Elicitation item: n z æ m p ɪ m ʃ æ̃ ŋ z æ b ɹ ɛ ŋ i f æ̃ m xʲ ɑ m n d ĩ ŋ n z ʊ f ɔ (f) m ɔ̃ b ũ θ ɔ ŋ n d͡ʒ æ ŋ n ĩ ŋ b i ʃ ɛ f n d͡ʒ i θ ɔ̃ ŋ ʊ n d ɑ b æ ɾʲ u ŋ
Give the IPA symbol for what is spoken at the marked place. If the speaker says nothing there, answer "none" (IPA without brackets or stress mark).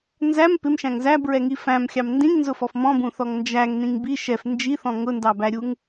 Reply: f